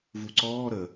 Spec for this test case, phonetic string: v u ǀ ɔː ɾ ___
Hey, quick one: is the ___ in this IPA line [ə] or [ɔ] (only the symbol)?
ə